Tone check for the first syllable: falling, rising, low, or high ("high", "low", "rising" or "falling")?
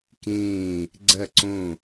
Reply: falling